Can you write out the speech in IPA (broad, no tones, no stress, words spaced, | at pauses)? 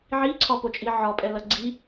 ʕiǀʰɒpot͡ʃʼi ʕɒpʼɛlɐ ɡ͡ǀi